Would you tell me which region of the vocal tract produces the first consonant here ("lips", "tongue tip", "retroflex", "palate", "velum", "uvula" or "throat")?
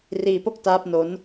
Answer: tongue tip